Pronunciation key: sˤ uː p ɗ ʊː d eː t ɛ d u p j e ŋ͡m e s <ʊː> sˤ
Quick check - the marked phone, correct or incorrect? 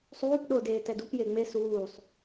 incorrect